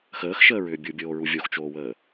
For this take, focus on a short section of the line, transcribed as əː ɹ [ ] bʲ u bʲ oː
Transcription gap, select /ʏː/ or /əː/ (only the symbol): ʏː